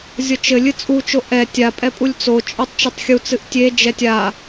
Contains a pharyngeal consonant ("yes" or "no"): no